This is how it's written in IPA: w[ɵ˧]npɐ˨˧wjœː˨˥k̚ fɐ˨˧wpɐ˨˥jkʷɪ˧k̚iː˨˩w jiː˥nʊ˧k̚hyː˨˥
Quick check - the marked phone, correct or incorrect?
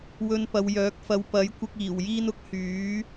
correct